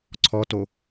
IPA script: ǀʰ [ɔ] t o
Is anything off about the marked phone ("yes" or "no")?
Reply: no